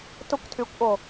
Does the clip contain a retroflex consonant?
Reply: no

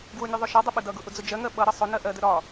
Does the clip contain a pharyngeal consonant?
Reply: no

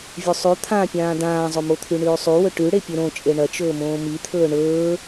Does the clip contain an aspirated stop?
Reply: yes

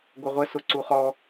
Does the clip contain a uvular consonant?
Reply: yes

